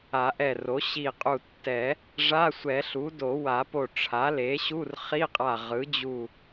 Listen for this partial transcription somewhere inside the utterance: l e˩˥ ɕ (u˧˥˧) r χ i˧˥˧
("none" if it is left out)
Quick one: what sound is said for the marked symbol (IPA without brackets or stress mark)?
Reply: u˧˥˧